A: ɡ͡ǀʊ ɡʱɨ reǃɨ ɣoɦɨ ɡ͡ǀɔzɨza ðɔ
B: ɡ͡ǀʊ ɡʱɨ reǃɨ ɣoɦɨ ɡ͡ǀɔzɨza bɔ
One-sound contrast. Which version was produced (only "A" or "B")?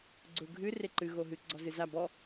B